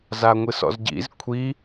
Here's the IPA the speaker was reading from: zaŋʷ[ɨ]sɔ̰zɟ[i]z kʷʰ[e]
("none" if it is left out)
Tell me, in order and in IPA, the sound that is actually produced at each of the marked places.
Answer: ɨ, ḭ, i

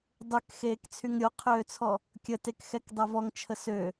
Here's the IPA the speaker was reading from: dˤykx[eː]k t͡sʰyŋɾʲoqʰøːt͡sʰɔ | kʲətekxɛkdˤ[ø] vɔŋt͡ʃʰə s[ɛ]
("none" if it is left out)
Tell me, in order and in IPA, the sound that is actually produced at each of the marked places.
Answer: eː, ø, ø

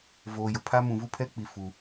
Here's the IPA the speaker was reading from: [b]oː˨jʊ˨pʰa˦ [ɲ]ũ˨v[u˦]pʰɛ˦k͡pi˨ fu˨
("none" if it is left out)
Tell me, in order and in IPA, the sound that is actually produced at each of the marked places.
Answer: v, m, u˦

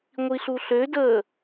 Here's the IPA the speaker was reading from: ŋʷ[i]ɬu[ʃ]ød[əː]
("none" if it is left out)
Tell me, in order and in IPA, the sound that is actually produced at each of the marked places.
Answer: i, ɬ, əː

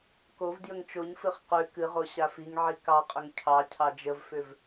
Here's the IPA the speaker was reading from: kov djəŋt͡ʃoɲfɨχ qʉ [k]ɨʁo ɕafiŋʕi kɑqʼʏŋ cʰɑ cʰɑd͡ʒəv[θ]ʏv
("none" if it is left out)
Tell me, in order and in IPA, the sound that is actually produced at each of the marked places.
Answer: k, f

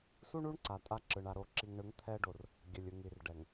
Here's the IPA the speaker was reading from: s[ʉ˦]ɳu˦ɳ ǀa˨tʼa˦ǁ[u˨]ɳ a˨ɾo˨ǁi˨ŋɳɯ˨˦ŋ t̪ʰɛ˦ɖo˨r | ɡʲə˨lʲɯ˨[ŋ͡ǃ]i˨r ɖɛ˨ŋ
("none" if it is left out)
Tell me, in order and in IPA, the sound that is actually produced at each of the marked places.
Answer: u˦, ɯ˨, ŋ

